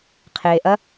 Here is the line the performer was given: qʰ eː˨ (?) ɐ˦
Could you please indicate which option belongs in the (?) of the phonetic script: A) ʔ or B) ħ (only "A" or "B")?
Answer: A